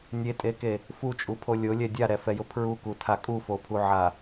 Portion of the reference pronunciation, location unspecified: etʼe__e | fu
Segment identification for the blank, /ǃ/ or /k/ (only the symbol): k